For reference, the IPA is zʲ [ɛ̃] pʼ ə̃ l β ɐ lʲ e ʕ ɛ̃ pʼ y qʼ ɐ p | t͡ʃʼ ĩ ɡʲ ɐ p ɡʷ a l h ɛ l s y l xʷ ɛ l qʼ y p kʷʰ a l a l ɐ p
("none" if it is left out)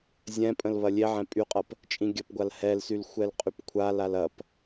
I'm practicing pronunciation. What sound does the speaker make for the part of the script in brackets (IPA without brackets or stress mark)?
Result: ɛ̃